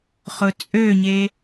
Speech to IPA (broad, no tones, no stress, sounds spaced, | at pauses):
χ ʊ t͡sʼ ø ɲ e